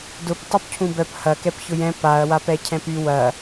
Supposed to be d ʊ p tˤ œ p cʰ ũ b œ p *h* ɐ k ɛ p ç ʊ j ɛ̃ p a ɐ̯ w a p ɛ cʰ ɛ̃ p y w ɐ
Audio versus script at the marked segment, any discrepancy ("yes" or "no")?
no